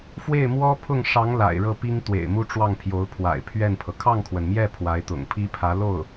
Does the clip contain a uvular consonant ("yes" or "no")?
no